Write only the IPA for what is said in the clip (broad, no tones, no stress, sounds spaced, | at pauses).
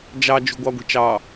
d͡ʒ ɑ d͡ʒ ṳ ɡʷ ɑ ɡʷ i̤ t͡ʃ ɑ